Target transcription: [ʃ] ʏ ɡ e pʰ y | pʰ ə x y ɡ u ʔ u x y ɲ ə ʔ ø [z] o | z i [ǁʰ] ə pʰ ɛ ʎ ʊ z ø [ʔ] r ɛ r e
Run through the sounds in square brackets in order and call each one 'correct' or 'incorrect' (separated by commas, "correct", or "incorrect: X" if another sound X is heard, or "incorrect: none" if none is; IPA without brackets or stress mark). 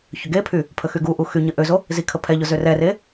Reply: incorrect: ç, correct, incorrect: kʰ, incorrect: none